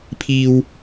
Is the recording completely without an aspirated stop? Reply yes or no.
no